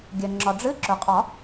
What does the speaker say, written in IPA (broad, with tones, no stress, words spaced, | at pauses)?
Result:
ɡʲə˩ ŋ͡ǁɒ˩ɖ͡ʐɨ˧˥˧ ǁɵ˩qʼɒ˨˩˦